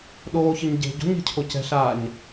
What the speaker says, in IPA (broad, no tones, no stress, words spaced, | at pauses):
ɗoːçɘɲ ɟe̤ ɟo̤ɲe̤cʰo cɛ̤ɬaːɲ